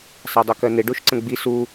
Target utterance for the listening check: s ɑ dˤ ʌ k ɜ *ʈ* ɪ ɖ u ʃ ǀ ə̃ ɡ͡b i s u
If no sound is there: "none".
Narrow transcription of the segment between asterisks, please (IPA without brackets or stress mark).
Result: n̪